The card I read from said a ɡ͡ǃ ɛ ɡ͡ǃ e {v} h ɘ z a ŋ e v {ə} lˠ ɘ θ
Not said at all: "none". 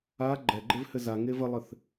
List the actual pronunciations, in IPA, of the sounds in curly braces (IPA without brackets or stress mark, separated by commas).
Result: v, ə